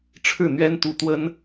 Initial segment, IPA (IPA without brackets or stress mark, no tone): ʈ͡ʂʰ